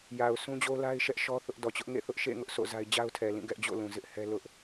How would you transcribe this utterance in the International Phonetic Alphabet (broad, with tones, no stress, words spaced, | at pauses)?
ja˨ʊ̯sũ˦d͡ʑo˦ la˦ɪ̯ʃɛ˦ʔ ʃɔ˦θʊ˦ʔ dɔ˨t͡ɕʊ˦ʔ ŋḛ˦˨θʊ˦ʔʃḛ˦˨ ŋʊ˦ʔsʰo̰˦˨ za˦ɪ̯ d͡ʑa˦ʊ̯tʰɛ˨lĩ˦˨ ɡɛ˦ʔd͡ʑo̰˦˨lũ˨ zɪ˦ʔhɛ˦lʊ˦ʔ